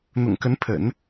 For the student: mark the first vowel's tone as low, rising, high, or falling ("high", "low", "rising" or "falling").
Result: low